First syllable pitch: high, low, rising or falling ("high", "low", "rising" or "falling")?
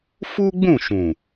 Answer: high